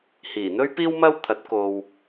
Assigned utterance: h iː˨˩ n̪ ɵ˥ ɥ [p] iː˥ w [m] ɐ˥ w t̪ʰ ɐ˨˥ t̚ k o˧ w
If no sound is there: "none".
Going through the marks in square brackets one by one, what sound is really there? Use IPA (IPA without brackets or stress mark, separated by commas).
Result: p, m